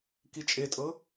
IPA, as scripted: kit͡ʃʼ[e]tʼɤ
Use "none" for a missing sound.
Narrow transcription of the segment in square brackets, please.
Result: e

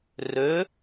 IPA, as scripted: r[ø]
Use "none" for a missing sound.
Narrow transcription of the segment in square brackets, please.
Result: ø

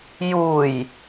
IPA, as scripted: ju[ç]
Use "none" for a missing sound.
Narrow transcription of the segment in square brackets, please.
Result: j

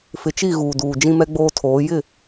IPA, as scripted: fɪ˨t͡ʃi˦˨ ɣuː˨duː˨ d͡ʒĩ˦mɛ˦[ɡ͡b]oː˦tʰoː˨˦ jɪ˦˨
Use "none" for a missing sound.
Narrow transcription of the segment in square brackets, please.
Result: ɡ͡b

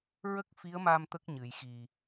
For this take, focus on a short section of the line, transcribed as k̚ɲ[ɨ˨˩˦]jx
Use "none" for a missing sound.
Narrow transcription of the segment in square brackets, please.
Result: ɨ˨˩˨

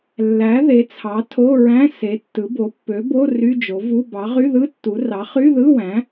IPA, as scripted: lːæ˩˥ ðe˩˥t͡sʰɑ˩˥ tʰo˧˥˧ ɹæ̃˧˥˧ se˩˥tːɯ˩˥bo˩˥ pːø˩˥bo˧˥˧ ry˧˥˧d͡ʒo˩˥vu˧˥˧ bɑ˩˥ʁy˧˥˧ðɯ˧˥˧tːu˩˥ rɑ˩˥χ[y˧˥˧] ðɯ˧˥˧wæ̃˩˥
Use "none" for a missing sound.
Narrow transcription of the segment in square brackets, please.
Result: y˧˥˧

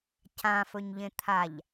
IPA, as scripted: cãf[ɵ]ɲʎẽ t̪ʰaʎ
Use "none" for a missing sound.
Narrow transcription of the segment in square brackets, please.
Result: ɵ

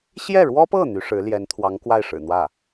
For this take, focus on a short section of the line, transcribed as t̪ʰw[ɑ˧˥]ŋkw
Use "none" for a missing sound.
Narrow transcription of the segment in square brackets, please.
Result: ɑ˧˥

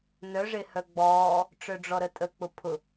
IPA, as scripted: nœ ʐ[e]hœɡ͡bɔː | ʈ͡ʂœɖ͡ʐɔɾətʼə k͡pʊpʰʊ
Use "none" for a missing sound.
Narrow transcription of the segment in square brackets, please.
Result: e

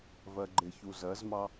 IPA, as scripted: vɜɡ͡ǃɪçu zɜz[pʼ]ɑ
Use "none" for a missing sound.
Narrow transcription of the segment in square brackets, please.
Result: m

